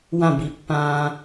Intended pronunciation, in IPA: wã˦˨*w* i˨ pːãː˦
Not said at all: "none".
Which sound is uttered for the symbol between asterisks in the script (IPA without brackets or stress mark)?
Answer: b